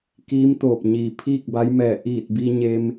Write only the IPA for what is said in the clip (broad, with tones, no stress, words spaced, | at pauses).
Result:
kiː˧˥mt̪oː˧˩p̚ ɲiː˩pʰiː˥˨k̚ba˧˥j mɛː˧˩ ʔiː˧˩t̚bi˧ ɲe˧m